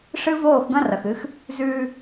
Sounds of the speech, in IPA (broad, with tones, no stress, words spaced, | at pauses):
ʂɨ˦voː˦˨xɡɐ̃˦rɐ˨x ɨ˦x | zʉː˦